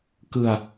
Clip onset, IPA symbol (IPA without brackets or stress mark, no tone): k